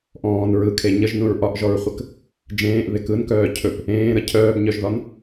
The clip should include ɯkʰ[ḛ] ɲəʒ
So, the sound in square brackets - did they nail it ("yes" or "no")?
no